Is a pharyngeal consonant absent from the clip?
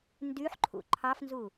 no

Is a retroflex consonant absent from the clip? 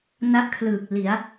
yes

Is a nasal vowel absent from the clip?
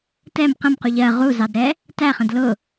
no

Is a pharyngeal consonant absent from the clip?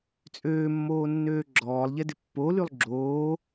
yes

